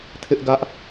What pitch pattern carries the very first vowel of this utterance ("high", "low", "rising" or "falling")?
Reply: high